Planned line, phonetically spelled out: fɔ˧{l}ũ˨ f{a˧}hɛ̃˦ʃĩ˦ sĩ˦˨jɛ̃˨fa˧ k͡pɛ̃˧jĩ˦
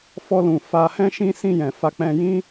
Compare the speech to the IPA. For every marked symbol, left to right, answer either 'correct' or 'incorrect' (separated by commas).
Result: correct, correct